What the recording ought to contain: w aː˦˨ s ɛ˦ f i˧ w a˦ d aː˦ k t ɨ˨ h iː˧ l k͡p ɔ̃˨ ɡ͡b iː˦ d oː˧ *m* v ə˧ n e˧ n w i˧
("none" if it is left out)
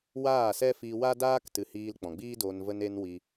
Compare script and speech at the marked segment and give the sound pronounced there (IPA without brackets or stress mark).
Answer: n